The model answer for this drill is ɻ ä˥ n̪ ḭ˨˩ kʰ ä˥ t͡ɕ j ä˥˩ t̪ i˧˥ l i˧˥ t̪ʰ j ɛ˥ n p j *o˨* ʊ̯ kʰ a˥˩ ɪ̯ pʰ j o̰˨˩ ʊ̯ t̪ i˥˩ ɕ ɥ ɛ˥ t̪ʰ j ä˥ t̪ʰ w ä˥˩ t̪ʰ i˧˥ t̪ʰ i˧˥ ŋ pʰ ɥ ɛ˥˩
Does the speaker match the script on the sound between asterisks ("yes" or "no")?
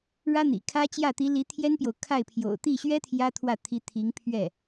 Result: yes